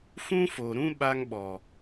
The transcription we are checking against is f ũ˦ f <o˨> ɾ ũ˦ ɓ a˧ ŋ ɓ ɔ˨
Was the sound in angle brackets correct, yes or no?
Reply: yes